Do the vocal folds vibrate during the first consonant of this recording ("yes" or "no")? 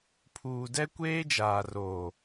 no